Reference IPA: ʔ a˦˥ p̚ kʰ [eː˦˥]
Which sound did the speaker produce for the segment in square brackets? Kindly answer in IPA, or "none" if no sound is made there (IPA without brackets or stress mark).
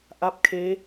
eː˦˥